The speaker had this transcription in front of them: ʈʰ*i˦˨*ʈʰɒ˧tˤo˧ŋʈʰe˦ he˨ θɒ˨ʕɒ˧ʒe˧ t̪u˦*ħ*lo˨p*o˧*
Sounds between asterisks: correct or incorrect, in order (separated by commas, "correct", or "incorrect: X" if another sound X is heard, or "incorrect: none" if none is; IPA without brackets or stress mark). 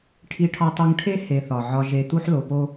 incorrect: i˧, correct, incorrect: o˦